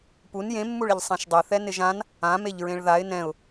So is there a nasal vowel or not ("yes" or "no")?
yes